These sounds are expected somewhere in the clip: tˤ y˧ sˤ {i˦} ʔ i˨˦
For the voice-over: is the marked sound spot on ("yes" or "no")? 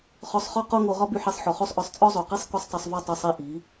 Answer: no